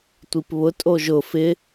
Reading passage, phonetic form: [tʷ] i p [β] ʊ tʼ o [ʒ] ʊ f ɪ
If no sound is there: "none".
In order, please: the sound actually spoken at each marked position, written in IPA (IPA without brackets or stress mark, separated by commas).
tʷ, β, ʒ